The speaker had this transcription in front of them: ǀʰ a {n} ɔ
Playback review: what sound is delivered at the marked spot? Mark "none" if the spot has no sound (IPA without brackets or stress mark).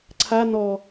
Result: n